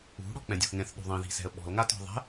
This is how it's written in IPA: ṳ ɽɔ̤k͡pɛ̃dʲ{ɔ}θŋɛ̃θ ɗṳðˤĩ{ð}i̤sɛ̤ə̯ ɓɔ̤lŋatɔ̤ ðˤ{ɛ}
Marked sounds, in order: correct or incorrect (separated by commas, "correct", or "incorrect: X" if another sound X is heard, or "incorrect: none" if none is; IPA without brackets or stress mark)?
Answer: incorrect: ɔ̤, correct, incorrect: ɛ̤